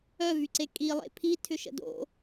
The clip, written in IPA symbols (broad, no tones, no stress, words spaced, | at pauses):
œvyǀe kʼilˠḛ pʰitʰʏʃə̰ do̰